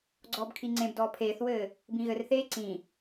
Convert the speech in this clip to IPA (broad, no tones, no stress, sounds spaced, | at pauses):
ɡ͡ǀ ɔː b kʰ i ŋ͡ǀ ẽ b d ɔː pʰ eː θ w ɘː | b ĩ ɣ ɘ r θ eː ǀ ĩ